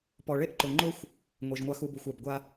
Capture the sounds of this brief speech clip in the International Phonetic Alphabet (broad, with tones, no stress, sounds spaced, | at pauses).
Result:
p ɔ˨ ɭ e˦ ʔ ǃ ʊ˨ ŋ͡ǃ ʊ˦ xʷ | ŋʷ i˨ ʒ ŋʷ a˦ x u˦ b u˨ xʷ a˨ b ɡʷ a˦